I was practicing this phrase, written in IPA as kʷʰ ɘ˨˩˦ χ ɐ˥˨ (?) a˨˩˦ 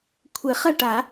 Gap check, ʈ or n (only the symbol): ʈ